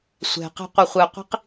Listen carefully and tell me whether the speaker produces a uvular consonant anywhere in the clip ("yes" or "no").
yes